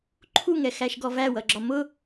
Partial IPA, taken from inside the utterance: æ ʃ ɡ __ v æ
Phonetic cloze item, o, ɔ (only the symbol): ɔ